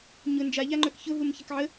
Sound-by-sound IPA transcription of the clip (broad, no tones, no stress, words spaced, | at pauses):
ɲʊ nd͡ʒaʎaŋ͡ǃœk çʊɦum çəkʕə